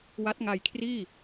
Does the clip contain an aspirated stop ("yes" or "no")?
yes